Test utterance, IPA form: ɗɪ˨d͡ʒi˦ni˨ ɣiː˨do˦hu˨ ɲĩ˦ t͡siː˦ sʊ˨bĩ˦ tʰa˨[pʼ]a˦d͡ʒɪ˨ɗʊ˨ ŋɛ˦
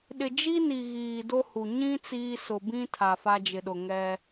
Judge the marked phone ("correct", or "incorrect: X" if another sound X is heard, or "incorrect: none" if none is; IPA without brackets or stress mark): incorrect: f